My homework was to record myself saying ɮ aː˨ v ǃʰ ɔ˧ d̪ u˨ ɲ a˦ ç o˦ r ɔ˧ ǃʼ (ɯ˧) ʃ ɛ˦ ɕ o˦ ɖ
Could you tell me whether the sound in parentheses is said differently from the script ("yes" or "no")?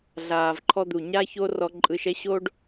no